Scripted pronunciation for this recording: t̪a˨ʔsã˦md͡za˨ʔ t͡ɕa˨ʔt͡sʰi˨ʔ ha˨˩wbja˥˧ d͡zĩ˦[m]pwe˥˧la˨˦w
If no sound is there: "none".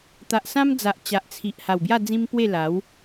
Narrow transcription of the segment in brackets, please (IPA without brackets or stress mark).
m